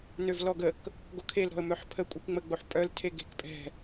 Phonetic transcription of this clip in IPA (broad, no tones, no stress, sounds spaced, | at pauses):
n ø v l ɔ ɡ ə k | ɡ o kʰ e l ɾ ɔ̤ ə̯ m œ ħ pʰ ə kʷʼ i k ŋ͡m ə ɡ͡b o ħ pʼ œ l tʰ e ɡ e̤ k pʼ ɛ̤